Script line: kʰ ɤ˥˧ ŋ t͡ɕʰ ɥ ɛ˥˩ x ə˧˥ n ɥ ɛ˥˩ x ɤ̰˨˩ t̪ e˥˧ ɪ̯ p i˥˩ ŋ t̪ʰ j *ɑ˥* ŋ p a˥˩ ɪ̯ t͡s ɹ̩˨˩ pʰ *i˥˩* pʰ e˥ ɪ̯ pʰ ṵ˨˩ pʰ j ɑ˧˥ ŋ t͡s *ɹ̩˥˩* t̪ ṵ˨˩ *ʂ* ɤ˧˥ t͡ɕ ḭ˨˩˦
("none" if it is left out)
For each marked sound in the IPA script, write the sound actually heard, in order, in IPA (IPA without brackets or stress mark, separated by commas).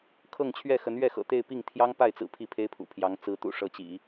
ɑ˥, i˥˩, ɹ̩˧˥, ʂ